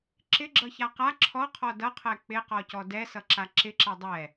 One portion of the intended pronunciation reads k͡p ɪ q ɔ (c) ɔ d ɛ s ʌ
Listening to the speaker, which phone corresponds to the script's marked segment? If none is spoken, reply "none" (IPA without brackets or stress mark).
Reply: c